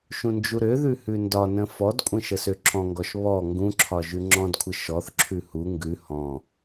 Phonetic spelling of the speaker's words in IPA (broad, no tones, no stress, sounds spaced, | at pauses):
ʃ ũ n d͡ʒ u ɾ ø ð ʉ h ʉ n d ɒ n ə̃ f ɔ d kʷʼ ə̃ ʃ ə s ø ǁʰ ɔ̃ ŋ ɡ ɔ ʃ β ɔ ŋ ɡ ũ ǁʰ ɒ ʒ ʉ ŋ͡ǁ ɔ̃ d kʷʰ ə ʃ ɔ θ ǁʰ ʉ h u ŋ ɡ ʉ h ɔ̃